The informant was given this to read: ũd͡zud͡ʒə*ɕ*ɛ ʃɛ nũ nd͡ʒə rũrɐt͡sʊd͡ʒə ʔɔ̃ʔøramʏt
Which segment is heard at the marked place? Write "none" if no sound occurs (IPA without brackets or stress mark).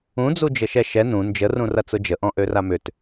ʃ